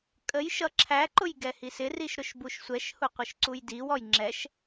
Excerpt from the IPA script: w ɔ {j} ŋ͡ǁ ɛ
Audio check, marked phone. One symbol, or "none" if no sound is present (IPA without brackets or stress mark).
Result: j